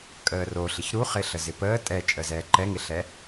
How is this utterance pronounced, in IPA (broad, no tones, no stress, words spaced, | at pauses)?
kʼəːro ɬɪçɾuχɪ ɬəzɪpəː tʼɛt͡ʃʼəzɛː ǃɛŋɪɬɛ